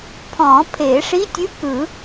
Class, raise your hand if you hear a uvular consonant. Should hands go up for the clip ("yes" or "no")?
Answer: no